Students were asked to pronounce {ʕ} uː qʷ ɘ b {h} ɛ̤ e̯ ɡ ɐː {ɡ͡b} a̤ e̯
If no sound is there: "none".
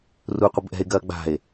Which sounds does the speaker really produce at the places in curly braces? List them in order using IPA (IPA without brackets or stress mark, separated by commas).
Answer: r, ʔ, ɡ͡b